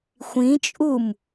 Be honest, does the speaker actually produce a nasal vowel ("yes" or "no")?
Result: yes